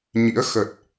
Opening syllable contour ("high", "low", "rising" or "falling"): rising